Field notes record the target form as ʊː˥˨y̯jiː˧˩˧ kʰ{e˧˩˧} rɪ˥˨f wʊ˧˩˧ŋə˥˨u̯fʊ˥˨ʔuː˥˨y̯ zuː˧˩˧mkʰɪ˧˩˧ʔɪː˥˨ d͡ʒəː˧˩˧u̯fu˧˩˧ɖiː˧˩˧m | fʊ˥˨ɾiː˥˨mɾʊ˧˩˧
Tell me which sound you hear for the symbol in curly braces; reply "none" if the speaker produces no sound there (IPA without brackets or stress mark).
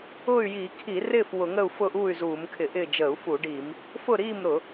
i˧˩˧